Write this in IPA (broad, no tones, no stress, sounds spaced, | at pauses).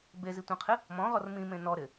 b e z i tʷ ẽ qʰ ɪ | m ɔ̃ ʁ ɔ r m ĩ m ẽ n ɔ ɾ ɪ